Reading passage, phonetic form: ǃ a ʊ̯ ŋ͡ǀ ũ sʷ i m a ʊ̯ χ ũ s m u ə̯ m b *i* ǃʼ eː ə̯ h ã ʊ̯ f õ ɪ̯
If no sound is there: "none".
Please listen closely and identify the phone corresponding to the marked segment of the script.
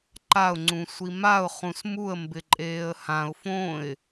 ɪ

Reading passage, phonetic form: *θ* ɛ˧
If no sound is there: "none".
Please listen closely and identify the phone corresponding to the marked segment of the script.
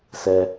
s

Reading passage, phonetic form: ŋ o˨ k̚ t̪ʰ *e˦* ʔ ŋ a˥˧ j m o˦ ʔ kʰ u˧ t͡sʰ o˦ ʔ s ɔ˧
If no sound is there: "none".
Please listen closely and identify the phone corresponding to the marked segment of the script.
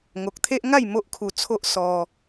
e˦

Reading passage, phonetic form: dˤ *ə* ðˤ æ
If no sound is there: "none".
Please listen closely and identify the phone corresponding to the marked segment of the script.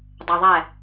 ɐ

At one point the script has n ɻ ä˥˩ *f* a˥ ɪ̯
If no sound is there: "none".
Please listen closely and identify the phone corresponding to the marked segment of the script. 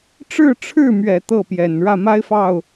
m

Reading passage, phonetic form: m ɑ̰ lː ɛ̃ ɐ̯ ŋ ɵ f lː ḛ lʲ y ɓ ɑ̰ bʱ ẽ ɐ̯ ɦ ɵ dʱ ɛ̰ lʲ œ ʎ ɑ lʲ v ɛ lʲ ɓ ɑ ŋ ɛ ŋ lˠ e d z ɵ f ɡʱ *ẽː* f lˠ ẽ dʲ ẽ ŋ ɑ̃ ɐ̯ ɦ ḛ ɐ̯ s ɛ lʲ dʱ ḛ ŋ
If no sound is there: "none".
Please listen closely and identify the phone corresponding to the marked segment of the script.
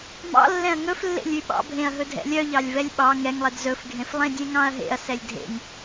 ẽ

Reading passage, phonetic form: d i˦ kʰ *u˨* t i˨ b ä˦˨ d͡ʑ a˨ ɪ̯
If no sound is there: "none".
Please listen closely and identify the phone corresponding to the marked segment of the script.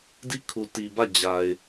u˨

